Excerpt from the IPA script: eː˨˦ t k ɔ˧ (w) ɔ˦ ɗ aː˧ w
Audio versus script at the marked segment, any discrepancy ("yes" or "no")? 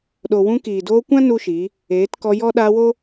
yes